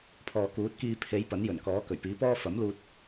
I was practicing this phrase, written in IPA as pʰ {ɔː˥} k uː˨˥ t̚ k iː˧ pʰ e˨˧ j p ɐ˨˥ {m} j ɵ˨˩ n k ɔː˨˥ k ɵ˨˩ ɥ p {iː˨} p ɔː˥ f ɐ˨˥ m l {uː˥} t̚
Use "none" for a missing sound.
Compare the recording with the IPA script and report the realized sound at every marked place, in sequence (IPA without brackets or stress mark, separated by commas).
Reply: ɔː˨, n, iː˨˥, uː˧